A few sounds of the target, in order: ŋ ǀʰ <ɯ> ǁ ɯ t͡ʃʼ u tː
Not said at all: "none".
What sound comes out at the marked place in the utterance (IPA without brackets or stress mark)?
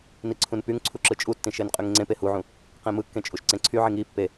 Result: u